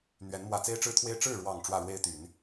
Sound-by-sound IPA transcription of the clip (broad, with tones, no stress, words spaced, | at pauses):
n̪ɥɛ˧˥nmwä˧˥ t͡se˥ɪ̯ʈ͡ʂɻ̩˥t̪ʰwe˥ɪ̯ ʈ͡ʂɻ̩˥˩ɻwɑ˨˩ŋ ʈ͡ʂwä˥˩ɻwe˥ɪ̯t̪y˨˩˦n